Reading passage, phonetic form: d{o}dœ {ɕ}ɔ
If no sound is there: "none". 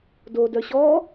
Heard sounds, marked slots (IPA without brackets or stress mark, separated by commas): o, ɕ